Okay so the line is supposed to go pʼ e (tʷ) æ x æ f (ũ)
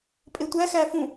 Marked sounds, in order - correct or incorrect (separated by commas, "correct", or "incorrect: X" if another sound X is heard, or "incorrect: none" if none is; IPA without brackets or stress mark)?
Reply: correct, correct